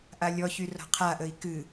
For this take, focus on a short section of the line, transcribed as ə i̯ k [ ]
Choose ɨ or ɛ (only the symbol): ɨ